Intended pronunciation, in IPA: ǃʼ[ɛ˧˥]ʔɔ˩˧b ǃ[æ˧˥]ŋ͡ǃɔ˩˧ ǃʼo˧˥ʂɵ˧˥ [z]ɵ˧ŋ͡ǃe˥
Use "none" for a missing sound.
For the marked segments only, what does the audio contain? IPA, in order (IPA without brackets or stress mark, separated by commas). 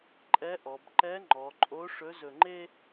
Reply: ɛ˧˥, ɛ˧˥, z